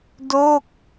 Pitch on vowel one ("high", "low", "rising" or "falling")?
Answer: falling